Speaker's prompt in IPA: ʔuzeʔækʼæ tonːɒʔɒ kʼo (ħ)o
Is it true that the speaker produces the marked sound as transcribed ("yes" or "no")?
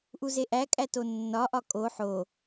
yes